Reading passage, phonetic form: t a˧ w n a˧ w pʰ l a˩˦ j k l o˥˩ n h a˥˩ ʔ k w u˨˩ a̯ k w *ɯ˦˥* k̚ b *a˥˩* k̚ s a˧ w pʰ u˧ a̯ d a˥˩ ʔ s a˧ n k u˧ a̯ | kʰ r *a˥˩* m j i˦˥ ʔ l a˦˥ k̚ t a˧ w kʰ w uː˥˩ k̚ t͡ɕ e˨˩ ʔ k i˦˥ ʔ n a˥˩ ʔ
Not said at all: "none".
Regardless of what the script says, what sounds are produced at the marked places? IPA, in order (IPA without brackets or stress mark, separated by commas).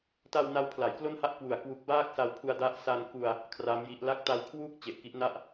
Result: u˦˥, aː˥˩, a˦˥